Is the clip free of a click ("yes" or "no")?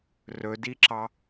no